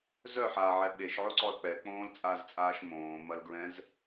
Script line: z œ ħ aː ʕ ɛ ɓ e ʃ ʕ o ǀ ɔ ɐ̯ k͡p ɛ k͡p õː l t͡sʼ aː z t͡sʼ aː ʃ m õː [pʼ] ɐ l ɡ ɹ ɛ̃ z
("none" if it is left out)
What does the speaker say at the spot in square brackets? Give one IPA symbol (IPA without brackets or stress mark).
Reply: m